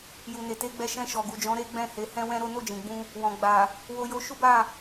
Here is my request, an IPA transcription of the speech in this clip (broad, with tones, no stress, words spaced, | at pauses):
ju˨ne˨te˨˦ɡ͡bɛ˧ ʃɛ̃˧ʃɔ˨ɡu˨d͡ʒɔ̃˨˦ ɾe˦ɡ͡bɛ̃˦˨he˨˦ hɛ̃˦wɛ̃˦ɾo˦ no˦˨d͡ʒĩ˨ɡ͡bũ˧ | wɔ̃˨ ɡ͡ba˨ | wo˧jo˧ʃu˦ba˦˨